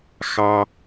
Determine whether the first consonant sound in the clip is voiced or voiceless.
voiceless